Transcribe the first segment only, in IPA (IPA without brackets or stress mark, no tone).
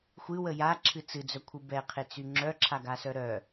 xʷ